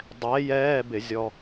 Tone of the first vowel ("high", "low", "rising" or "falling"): rising